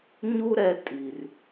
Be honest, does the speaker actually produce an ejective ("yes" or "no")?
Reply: yes